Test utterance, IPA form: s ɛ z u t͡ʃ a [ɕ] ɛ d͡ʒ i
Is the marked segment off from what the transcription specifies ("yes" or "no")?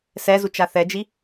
yes